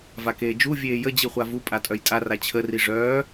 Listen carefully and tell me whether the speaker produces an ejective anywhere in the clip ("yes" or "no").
yes